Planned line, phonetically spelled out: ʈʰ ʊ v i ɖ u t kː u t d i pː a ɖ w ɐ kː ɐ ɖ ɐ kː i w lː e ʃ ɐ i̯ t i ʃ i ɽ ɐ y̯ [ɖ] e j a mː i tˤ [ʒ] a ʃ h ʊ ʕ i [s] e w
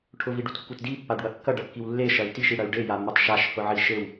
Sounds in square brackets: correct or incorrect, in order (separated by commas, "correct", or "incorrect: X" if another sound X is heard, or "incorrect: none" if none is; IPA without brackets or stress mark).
correct, incorrect: ʃ, incorrect: ʃ